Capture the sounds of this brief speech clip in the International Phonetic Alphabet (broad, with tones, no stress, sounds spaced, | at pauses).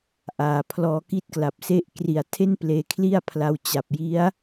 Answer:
ʔ aː˨˩ pʰ l ɔː˧ k i˥˩ t̚ k l a˨˩ p̚ s e˥˩ ʔ k r i˨˩ a̯ tʰ e˥˩ n p l eː˧ kʰ l i˥˩ a̯ pʰ l a˧ w t͡ɕ a˨˩ p̚ j i˦˥ a̯